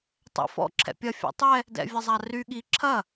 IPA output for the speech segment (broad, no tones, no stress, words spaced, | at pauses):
tˤɛ̰fɔ̰ ǁʰɛ̰pʲɐ fʲɛ̰tˤɛ | dɛ̰vʲɐzˤary ɠi ǁʰɐ